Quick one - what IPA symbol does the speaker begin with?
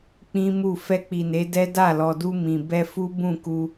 k͡p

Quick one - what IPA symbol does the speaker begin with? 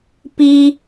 p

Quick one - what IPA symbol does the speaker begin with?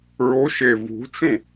ɹ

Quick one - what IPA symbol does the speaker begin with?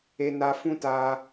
e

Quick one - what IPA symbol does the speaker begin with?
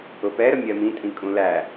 ʊ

